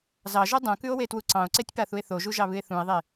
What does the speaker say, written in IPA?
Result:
z ɑ ʒ u dˤ ũ k ʉ o̯ w e t w u ǀ ɑ̃ o̯ ǀ e tʲ p a θ u e̯ θ o ʒ u ʒ ɑ β ɨ e̯ θ ũ e̯ ðˤ e

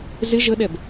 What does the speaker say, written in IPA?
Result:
z ɪ ʒ ə ɗ ɛ b

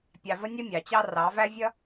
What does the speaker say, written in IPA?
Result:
pʲ ɑ˨ v ə˦ nʲ ʌ˦ mʲ ɑ˨ t͡ɕ ɑ˦ r ɑ˨˦ v æ˦ vʲ ʌ˦

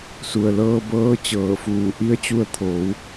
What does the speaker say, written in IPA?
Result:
s u˩ ə̯ l ɤː˧ b ɤː˧˥ t͡ɕ ɤː˧˩ f uː˧˩ ʔ i˧˥ ə̯ t͡ɕ u˧ ə̯ t̪ʰ oː˩˧ w

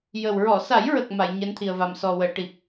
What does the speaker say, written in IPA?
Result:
j ə˨˩ w ɹ ɔ˨˩˨ s a˨˩˦ j ɹ ə˨˩ k̚ m a˨˩˨ j ɲ ɛ˧˥ n t̪ʰ i˨˩ ə̯ v a˨˩ m s ɔ˨˩ w əː˨˩˨ ʈ i˨˩ p̚

